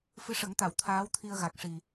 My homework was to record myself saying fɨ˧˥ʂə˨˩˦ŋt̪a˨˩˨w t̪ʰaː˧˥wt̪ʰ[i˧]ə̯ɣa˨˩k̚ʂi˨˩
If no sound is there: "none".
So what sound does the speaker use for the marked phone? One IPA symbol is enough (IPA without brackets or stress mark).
i˧